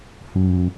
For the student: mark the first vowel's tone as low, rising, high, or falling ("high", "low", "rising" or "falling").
high